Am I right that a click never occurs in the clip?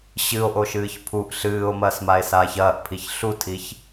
yes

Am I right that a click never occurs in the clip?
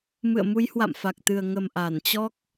yes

